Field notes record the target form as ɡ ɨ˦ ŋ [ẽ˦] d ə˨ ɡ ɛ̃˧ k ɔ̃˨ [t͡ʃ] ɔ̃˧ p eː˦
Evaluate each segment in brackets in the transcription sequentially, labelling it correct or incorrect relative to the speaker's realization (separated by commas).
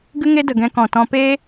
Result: incorrect, incorrect